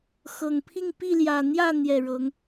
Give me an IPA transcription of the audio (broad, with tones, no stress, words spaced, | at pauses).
xɤ˨˩ŋ pʰi˥˨ŋ pi˥˨ljä˨˩ n̪jä˥˨n̪jɛ˨˩ ɻɤ˨˦ŋ